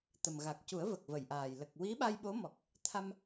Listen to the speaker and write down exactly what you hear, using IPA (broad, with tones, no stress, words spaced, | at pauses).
t̪ə˨˩mɣa˨˩k̚cu˨˩˦ə̯ və˨˩k̚və˨˩˨jʔaː˨˩j lə˨˩k̚ wi˧˥ɓa˧jɓo˧˥mɔ˨˩k̚ | t̪ʰa˧m